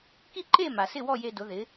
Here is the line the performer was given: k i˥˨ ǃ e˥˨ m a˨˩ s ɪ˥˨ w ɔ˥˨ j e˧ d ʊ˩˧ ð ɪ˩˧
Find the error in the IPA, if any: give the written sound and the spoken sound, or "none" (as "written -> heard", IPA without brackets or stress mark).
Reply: none